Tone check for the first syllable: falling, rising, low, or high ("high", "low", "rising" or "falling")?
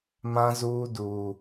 low